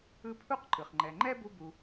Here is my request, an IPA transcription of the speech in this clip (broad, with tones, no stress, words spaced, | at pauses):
ɯ˦pʰu˥q ǃɯ˩χŋ͡ǃɛ˨ŋ͡ǃɛ˥ bu˦bu˨